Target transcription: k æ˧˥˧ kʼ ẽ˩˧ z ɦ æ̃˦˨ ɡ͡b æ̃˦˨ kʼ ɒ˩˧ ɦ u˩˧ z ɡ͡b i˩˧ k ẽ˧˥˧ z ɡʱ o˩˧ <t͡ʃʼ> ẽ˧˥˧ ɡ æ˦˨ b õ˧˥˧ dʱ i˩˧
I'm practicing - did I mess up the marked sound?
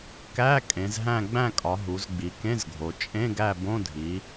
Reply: no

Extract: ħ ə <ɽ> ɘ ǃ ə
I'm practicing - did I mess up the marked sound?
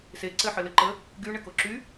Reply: yes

